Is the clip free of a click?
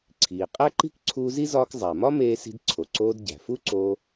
no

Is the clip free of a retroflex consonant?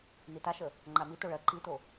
no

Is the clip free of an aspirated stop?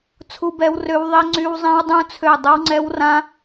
no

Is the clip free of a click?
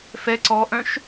no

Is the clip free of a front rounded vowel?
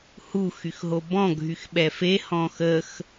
no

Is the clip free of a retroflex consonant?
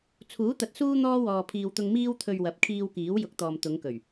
yes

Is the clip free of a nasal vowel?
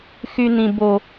no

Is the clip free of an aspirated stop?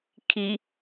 no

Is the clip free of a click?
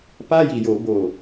yes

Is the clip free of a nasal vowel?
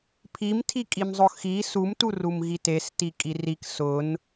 yes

